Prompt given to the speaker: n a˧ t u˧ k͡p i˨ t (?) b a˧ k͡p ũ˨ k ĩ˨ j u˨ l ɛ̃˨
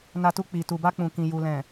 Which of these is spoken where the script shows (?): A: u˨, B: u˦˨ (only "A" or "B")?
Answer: A